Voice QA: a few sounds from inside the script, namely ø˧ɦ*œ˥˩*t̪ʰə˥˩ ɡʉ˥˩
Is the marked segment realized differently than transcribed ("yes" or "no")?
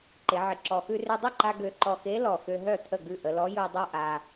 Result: no